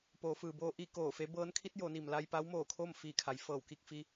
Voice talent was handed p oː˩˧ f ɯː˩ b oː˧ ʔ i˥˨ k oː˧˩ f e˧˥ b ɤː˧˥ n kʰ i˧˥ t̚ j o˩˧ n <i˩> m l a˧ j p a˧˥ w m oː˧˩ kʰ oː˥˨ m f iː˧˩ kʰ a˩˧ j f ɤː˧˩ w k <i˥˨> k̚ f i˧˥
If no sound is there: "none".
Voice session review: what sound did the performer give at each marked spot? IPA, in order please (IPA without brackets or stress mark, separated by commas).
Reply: i˩, i˥˨